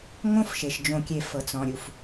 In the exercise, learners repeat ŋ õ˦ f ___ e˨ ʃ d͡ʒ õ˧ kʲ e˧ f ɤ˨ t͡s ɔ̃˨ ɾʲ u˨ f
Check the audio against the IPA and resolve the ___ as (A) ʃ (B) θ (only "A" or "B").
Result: A